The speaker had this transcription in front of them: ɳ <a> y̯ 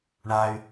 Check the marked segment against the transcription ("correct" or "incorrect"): correct